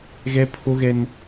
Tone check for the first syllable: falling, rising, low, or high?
high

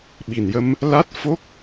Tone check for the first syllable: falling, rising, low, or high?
low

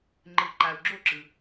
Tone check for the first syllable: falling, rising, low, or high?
low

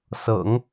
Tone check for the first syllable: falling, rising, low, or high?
low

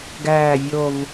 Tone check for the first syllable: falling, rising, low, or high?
low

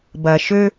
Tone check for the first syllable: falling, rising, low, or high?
low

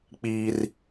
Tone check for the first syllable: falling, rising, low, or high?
high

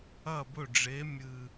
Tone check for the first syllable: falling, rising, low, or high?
falling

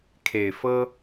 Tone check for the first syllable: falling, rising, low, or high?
low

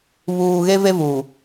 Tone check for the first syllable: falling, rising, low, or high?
low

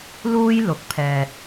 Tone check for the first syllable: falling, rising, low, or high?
high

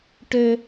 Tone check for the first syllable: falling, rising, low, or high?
high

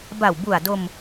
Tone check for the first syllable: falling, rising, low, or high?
low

